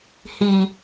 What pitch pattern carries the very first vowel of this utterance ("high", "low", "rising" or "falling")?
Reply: low